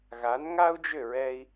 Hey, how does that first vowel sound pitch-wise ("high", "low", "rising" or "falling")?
rising